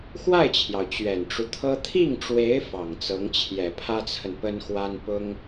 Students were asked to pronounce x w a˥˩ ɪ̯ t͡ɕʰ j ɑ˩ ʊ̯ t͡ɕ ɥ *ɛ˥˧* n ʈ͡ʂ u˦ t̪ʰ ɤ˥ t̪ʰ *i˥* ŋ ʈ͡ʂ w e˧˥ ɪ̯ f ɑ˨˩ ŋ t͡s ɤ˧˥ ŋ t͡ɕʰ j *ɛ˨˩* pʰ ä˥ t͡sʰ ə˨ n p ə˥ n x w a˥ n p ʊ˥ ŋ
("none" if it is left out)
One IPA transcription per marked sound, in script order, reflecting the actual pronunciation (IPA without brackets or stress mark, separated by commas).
ɛ˨˩, i˥˩, ɛ˨˩